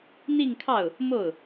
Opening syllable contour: falling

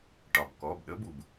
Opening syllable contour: low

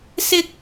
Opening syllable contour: high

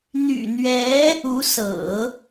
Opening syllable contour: low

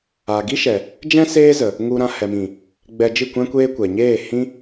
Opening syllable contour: low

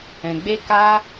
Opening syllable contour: low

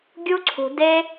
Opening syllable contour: high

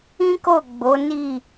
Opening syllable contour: high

